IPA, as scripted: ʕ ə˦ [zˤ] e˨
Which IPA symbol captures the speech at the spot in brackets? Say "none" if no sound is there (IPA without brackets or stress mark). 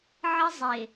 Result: zˤ